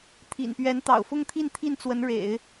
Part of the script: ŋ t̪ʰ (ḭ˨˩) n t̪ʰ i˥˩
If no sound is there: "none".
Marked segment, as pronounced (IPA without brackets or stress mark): i˥˧